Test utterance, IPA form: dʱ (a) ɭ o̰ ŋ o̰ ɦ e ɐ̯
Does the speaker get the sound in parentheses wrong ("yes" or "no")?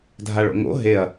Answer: no